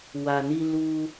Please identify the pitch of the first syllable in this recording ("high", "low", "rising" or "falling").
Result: low